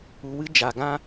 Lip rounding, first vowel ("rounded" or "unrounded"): rounded